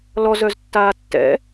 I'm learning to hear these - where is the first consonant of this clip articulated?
tongue tip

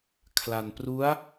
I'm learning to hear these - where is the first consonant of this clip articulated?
velum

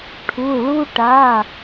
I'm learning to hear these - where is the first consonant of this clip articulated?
retroflex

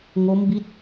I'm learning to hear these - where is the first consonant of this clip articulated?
velum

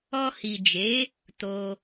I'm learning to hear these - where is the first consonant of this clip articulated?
throat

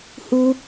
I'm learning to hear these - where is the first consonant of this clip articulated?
throat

